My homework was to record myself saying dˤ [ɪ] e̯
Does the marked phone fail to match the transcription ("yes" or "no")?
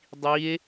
yes